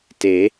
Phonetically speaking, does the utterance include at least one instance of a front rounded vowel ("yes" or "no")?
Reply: no